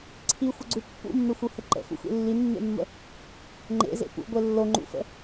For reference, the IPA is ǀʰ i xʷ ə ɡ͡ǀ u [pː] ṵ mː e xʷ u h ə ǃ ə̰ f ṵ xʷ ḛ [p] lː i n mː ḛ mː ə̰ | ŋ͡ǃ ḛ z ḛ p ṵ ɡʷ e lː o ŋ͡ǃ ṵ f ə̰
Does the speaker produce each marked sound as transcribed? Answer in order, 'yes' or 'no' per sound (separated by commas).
yes, no